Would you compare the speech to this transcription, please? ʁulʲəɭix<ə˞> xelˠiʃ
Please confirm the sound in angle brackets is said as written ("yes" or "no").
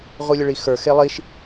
yes